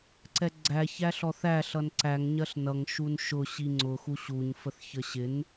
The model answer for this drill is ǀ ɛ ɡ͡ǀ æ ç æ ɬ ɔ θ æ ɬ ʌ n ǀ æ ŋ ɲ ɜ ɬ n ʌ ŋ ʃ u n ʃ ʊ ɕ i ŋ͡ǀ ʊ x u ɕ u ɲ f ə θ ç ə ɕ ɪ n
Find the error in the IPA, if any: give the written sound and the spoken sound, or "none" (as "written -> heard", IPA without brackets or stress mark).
none